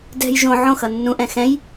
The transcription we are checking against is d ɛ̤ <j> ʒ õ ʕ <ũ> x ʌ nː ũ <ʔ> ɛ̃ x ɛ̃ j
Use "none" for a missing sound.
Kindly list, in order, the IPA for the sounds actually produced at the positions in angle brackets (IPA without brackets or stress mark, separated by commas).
j, õ, ʔ